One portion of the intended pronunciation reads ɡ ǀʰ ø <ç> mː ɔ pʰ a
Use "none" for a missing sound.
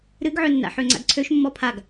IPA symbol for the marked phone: ʃ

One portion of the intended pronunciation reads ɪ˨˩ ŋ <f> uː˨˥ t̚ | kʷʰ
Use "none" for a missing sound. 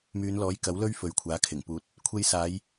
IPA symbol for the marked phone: p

